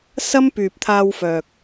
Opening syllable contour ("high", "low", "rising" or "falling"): high